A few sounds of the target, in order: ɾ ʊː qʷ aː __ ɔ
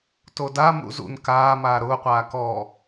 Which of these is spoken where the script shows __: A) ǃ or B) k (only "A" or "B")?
B